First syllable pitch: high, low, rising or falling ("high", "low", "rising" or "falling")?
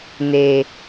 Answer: low